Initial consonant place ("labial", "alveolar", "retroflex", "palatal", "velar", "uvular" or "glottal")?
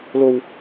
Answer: alveolar